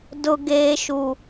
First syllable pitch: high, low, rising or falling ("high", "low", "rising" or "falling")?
high